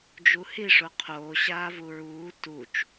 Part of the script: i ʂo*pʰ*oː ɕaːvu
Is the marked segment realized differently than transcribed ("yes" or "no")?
yes